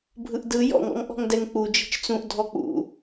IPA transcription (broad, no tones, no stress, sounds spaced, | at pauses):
bʱ ɯ ʔ d ɯ j ɔ̰ ŋ ɔ̰ ŋ ʔ ɔ̤ ŋ d ɛ ŋ k͡p u d͡ʒ i̤ t͡ʃ t͡s ũ ʔ dʱ ɔ k͡p ṵ